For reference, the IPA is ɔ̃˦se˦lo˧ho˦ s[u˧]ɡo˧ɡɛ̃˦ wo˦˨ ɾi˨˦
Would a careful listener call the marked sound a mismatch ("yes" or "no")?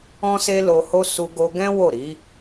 no